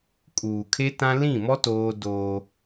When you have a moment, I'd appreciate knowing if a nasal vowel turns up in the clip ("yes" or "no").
yes